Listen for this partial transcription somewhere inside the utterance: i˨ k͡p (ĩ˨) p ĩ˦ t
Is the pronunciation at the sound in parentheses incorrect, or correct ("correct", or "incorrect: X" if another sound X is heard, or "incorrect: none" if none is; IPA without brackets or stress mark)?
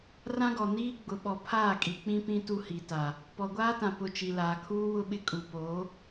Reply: incorrect: ĩ˦